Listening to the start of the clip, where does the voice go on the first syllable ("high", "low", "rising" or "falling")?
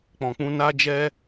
low